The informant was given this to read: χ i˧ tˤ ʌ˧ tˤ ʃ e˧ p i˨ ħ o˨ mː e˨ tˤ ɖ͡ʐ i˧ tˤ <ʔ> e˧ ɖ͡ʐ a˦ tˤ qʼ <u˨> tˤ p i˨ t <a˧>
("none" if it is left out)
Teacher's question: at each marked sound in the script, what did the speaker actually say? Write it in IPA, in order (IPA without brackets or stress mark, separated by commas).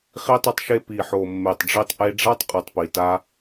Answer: ʔ, u˨, a˧